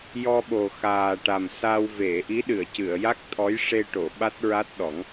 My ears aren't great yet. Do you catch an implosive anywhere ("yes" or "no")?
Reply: yes